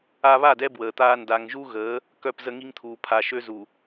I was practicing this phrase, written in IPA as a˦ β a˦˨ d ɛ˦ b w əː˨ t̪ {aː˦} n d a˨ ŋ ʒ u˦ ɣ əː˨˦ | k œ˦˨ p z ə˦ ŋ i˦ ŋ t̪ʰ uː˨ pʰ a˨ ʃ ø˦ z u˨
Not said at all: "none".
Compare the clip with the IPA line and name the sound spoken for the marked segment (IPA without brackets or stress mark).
aː˦